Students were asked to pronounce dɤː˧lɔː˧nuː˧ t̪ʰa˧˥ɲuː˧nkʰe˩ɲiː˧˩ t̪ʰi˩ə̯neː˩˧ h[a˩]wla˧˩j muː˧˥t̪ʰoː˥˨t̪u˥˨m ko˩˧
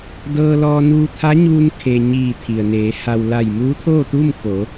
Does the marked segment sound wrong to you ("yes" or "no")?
no